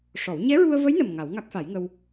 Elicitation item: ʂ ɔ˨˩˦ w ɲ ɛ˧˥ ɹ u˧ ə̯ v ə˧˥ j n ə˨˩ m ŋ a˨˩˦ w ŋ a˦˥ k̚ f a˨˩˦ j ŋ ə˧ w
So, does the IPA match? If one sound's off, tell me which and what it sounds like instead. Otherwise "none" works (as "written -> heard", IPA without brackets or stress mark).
none